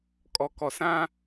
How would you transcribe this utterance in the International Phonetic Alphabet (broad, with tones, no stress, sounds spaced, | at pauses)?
kʼ ɔ˨ k ɔ˨ s ã˦